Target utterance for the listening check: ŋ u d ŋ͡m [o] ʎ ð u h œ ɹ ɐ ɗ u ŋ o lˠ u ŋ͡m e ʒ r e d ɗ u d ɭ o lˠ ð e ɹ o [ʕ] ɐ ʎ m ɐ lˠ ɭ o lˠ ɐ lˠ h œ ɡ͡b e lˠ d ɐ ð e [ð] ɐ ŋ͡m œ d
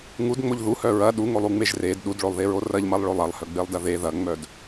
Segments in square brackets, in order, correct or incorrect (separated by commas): correct, incorrect, correct